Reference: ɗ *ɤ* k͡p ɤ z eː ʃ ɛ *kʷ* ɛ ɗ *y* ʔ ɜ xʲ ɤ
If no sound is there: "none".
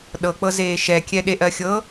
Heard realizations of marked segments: ɤ, kʲ, e

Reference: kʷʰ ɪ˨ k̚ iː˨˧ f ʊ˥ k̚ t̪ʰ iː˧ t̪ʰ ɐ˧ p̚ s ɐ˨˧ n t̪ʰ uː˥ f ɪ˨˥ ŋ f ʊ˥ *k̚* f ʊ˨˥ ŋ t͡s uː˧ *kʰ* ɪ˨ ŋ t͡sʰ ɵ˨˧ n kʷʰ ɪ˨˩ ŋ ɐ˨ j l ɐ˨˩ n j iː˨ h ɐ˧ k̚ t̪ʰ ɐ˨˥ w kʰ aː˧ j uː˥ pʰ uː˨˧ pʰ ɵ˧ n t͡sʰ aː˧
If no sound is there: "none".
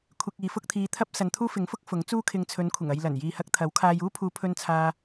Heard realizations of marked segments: k̚, kʰ

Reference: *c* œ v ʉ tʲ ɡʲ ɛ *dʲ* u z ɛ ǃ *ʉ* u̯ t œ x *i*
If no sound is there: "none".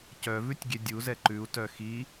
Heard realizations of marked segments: c, dʲ, ʉ, i

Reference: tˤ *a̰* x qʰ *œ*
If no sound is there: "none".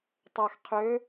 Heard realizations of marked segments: a, ø

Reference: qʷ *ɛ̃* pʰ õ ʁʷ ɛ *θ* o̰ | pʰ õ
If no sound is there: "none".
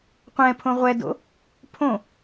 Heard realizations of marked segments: ɛ̃, d

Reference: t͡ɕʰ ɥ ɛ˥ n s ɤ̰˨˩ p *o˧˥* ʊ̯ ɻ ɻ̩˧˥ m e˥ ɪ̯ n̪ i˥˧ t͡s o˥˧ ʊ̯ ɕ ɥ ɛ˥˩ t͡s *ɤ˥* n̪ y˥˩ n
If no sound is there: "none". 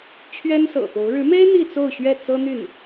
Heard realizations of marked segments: o˧˥, ɤ˥

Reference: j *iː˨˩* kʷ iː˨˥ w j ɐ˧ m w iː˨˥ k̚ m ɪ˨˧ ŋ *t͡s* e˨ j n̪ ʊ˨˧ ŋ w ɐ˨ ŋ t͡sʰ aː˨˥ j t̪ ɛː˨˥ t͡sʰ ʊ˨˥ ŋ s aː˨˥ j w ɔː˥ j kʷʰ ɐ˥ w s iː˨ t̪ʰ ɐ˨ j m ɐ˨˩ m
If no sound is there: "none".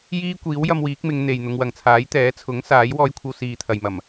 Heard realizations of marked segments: iː˥, n̪

